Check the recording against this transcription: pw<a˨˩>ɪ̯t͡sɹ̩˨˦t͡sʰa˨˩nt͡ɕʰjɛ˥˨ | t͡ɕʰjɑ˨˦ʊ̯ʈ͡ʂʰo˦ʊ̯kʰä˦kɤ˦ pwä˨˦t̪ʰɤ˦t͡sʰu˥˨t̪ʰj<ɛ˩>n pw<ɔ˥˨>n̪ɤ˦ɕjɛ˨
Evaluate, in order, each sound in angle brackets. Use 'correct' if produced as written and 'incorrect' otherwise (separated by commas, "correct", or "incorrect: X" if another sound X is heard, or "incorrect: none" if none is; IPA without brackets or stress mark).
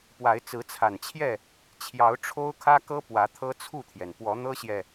incorrect: a˨˦, correct, incorrect: ɔ˨˦